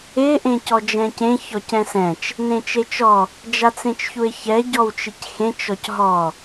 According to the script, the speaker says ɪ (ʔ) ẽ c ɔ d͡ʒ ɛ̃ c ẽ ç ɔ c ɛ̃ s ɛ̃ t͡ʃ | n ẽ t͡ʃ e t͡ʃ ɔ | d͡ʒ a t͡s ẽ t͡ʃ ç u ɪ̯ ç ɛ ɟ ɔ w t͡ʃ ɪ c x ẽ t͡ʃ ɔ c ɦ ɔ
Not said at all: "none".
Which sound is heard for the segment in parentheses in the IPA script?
ʔ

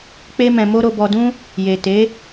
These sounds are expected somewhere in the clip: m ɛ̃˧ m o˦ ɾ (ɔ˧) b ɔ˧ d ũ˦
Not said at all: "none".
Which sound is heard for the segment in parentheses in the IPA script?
o˧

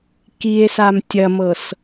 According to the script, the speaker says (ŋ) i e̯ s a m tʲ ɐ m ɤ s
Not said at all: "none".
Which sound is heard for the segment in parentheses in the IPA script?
k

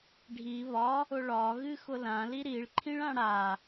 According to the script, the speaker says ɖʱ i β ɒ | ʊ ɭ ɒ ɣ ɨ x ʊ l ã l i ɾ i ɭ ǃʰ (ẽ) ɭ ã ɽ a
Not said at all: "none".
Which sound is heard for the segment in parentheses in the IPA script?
ĩ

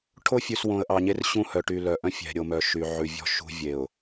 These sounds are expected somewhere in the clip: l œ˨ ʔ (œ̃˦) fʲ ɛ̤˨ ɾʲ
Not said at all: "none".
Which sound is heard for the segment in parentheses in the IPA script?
œ̃˦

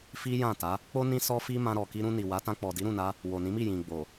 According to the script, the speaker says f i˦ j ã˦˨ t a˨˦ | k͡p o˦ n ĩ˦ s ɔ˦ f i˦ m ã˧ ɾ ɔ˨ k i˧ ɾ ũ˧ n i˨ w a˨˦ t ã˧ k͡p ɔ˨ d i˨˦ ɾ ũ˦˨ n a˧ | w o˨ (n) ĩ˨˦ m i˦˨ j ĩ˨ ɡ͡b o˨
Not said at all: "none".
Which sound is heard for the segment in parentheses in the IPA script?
n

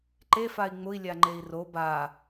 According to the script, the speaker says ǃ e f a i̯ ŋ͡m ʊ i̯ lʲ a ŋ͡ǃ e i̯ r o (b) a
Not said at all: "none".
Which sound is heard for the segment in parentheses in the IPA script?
b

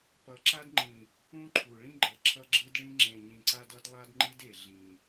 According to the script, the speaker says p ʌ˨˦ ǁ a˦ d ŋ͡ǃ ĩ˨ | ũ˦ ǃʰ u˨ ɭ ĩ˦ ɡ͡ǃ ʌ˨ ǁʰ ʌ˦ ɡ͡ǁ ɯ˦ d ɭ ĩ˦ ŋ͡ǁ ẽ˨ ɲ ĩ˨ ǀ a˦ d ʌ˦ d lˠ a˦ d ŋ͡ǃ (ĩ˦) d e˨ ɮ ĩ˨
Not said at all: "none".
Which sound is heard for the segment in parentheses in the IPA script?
i˦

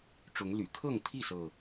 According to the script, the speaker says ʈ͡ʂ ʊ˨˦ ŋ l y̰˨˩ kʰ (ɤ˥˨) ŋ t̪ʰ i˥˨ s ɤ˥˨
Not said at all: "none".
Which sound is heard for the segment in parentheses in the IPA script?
ɤ˥˨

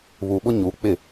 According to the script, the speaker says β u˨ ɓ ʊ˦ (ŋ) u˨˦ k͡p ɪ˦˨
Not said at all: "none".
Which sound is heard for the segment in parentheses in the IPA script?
ɲ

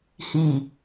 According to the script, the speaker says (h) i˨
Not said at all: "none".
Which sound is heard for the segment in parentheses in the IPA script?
h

